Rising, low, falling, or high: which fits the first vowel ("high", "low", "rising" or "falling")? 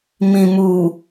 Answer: low